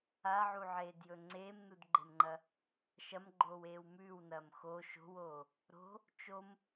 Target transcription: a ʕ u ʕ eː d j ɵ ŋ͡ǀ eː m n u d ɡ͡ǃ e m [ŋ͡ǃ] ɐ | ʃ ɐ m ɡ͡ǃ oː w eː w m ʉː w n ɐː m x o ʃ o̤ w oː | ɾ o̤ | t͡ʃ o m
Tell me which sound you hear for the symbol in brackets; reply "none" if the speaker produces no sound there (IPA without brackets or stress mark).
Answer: ŋ͡ǃ